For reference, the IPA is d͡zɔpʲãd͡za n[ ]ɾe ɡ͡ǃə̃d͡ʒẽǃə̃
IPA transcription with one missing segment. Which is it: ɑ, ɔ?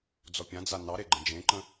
ɑ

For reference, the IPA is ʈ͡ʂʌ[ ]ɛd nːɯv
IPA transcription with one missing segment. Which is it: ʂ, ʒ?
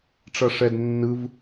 ʂ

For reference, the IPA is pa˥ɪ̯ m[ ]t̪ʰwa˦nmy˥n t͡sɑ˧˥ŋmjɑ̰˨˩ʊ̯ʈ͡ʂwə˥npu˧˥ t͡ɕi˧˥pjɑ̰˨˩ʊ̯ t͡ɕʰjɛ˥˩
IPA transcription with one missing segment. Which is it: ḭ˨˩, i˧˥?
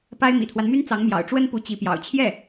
ḭ˨˩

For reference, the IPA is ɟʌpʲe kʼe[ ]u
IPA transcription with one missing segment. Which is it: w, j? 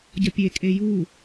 j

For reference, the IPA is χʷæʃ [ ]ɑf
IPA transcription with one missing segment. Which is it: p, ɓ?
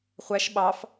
ɓ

